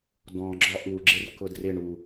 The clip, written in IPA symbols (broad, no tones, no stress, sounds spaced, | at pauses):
d ɔ̃ ɡ͡ǁ ɒ ʔ u ɡ͡ǁ ɪ r k ʊ d r ɪ ɳ u